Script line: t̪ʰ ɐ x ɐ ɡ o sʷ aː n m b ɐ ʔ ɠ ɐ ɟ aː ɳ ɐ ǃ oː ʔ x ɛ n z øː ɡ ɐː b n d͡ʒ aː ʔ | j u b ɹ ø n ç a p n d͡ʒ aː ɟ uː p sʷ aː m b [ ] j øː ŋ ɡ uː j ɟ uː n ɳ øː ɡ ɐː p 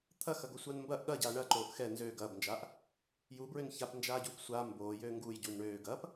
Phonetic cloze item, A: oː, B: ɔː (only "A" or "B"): A